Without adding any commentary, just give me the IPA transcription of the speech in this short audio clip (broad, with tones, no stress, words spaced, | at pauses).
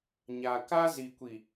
ɲa˨ka˦ zi˨kʷi˨